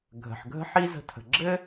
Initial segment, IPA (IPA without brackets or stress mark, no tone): ɡʱ